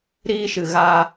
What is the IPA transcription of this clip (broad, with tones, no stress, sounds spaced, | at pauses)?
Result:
ɾ iː˦ ʃ ɨ˧ ɣ a˧